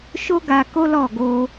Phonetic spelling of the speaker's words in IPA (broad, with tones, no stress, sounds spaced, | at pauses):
ʃ o˦ ɡ a˧ k o˦ l ɔ˦˨ ɡ o˧